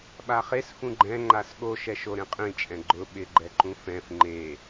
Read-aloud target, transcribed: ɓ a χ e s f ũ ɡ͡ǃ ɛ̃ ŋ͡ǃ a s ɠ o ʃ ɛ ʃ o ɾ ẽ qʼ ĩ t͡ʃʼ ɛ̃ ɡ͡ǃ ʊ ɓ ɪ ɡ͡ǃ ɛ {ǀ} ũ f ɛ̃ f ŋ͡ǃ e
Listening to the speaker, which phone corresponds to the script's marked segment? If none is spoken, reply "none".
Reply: ǃ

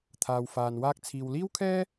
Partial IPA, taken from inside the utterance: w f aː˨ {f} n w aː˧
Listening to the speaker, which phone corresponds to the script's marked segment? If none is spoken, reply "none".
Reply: none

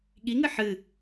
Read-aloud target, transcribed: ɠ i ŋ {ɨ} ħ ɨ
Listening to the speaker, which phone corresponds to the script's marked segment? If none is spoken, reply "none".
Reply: ɨ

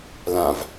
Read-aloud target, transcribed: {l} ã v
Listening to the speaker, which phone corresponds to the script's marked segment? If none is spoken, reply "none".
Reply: l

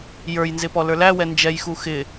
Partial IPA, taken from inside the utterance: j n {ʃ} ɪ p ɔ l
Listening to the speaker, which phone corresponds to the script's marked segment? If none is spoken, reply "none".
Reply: z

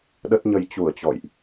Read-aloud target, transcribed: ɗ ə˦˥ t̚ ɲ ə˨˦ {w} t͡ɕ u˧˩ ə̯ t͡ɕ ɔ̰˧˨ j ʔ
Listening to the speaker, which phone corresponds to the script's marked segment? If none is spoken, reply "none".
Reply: j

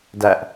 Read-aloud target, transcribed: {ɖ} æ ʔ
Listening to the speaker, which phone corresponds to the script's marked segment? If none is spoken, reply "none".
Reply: d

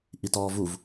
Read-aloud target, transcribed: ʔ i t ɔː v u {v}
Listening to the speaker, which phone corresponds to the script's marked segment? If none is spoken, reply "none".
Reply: v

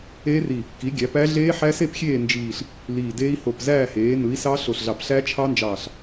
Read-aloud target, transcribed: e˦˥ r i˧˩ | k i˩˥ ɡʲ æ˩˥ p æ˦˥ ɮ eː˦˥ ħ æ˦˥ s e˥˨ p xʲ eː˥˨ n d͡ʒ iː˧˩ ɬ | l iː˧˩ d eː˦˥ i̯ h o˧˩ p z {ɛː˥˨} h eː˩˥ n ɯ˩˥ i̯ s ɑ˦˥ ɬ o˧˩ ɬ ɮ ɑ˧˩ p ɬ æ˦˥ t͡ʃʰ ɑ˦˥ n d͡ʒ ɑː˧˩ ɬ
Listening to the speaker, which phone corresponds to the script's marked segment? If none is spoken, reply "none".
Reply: æː˥˨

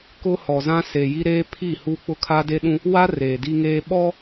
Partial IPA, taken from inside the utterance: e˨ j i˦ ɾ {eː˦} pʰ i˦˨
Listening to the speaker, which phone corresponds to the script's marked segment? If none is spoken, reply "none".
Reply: eː˦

